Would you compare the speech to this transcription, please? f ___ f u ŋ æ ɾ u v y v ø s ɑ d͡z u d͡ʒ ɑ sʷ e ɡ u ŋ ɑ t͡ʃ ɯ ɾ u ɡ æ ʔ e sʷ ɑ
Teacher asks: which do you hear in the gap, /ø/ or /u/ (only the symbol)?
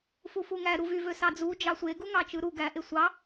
u